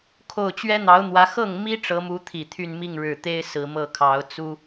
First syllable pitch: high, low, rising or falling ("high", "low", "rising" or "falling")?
low